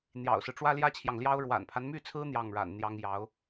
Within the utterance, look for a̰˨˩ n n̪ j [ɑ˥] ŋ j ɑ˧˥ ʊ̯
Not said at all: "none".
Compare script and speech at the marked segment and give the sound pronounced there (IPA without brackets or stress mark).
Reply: ɑ˥